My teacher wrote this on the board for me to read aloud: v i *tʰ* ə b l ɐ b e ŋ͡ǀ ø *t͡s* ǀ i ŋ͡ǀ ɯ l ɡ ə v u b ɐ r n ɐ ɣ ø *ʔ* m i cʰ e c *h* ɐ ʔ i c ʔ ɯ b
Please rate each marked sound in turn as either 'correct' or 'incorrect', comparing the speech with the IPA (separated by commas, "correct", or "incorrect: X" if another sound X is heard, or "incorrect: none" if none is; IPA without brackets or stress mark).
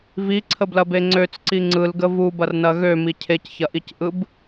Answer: incorrect: ǀʰ, correct, incorrect: none, incorrect: ç